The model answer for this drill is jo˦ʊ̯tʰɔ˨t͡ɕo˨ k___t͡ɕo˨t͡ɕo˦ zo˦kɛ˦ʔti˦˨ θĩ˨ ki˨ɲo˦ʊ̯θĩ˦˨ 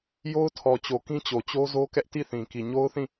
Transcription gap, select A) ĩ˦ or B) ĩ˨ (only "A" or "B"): A